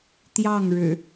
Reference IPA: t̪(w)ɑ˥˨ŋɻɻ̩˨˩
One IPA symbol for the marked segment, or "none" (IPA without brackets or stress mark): j